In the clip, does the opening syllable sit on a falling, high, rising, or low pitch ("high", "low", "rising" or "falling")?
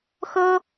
high